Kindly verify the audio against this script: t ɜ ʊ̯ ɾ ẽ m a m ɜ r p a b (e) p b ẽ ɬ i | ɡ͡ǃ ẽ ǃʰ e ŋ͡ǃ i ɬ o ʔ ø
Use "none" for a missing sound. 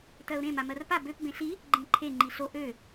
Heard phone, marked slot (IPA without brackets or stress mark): ø